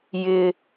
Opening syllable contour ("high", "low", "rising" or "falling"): high